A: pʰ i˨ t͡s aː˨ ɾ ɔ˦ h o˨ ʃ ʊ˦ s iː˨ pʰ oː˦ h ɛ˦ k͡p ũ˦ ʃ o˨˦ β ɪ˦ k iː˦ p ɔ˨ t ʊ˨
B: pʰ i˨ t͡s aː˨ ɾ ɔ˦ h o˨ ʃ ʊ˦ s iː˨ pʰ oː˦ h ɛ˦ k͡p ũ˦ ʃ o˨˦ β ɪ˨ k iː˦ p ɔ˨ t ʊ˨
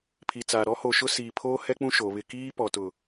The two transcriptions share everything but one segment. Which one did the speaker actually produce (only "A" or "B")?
A